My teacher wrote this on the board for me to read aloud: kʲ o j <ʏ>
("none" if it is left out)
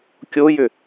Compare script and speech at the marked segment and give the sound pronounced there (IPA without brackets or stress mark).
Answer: ʏ